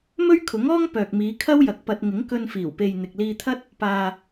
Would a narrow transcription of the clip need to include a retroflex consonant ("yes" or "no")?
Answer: no